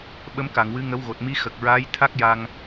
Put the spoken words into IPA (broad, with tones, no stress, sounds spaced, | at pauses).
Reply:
ɓ ə˧˥ m k a˨˩˨ ŋ w ɨ˧˥ ŋ ə˧˥ w ɣ o˨˩ t̚ m i˧˥ x ə˨˩ k̚ ɹ aː˧˥ j t̪ʰ a˦˥ k̚ j a˧ ŋ